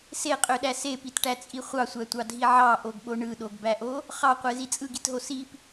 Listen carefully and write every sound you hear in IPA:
seqʼøɗæ sepitʈæt͡sʼi χʷɑsʷætʷɑdʱi ʕɑʔoɡɓo ɳɯɗoɡbæʔo | χɑqʷezi t͡sʼɯɡitɦo sip

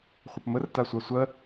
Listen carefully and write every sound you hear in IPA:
χʷəpmər tasʷasʷɜ

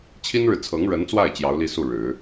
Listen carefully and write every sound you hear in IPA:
t͡ɕʰi˥nɻɻ̩˨ t͡sʰɤ˧˥ŋɻə˧˥nt͡swa˥˩ɪ̯ t͡ɕjɑ˧˥ʊ̯li˥˧su˥˩ɻɻ̩˨˩˦

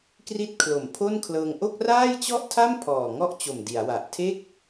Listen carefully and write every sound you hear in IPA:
kri˥˩t̚ kʰlo˨˩mpʰo˥˩nkʰlɤː˧ŋ ʔo˥˩k̚raː˥˩jt͡ɕɔ˥˩ʔtʰa˥˩m pʰɔː˨˩ŋɔ˥˩ʔt͡ɕo˨˩m di˩˦a̯wa˨˩ʔ tʰe˥˩k̚

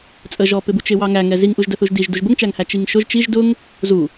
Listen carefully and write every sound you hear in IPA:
t͡sʼəʒɔpɪbu t͡ʃɪwɑŋæŋɛ ziŋʔuʒ dəθuʒdiʒ duʒbəŋt͡ʃæŋhæ t͡ʃiŋʃʊʒ t͡ʃiʒ dʊŋ | zu

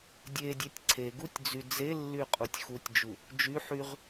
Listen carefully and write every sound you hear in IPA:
dʲedʲetʲ ǀʰeɡutʲd͡zy d͡zelːyqʼutʲ xutʲd͡ʒu | d͡ʒy ħyʁ

